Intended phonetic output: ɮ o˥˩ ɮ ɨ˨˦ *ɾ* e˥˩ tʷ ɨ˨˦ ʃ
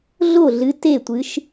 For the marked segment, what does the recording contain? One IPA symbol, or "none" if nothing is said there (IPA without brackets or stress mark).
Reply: t